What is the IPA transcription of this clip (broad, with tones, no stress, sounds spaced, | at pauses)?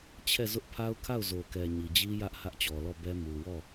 t͡ɕʰ ɛ˦˨ z ʊ˦ ʔ pʰ a˦ ʊ̯ kʰ a˦˨ ʊ̯ z o˨ k ɛ˨ ɲ i˨ d͡ʑ i˦ j ä˦ ʔ h ä˦ ʔ t͡ɕ ɔ˨ l ɔ˦˨ b ɛ˦ m u˨ w ɔ˦˨